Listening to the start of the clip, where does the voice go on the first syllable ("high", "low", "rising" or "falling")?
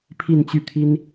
falling